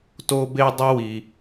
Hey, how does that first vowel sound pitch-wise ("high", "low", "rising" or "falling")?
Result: high